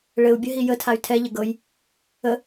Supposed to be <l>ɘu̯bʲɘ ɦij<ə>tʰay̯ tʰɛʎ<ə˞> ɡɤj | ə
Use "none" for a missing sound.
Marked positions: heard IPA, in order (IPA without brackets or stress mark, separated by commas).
ɭ, ə, ə